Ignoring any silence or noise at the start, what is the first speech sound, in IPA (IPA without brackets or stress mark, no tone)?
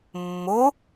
mː